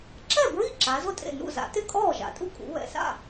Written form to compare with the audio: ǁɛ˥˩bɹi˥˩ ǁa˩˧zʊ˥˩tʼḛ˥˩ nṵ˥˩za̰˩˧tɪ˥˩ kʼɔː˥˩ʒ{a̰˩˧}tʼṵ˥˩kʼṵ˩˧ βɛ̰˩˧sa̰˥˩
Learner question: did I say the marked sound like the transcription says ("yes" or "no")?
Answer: yes